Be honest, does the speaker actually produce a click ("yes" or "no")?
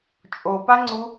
yes